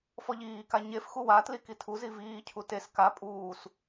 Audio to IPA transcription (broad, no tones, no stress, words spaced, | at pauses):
fɔʎiːka ɲef xuwatli kitʰuzi viːcʰu tes ka pʼuːs